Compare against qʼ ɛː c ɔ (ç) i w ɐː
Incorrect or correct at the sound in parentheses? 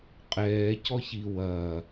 correct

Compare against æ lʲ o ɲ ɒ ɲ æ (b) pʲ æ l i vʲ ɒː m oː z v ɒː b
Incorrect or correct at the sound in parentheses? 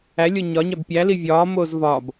correct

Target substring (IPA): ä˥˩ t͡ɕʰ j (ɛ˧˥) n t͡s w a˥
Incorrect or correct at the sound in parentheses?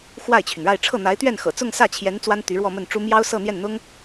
correct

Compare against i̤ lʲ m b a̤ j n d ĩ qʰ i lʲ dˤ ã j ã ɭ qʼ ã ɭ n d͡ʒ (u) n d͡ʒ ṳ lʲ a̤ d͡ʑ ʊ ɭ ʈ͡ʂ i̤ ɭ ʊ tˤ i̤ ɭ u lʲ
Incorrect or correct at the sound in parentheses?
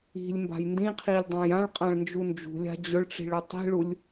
correct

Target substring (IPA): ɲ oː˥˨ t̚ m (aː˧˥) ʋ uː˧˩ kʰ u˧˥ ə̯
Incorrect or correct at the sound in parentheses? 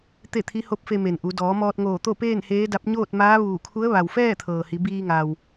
correct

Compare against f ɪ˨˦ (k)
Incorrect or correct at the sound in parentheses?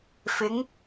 incorrect: ŋ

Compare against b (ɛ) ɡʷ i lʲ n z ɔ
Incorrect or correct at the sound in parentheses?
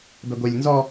correct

